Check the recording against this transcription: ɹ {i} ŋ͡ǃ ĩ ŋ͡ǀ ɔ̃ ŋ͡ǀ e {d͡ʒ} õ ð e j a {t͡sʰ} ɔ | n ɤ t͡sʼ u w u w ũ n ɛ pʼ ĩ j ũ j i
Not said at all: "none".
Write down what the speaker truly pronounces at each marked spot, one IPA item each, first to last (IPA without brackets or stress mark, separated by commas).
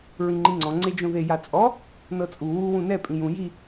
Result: ĩ, d͡ʒ, t͡sʼ